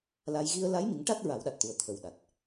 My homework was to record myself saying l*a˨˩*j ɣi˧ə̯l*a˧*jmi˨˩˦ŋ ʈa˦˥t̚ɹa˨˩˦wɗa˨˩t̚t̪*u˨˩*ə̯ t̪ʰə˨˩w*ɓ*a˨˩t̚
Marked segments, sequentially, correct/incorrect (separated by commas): incorrect, incorrect, correct, incorrect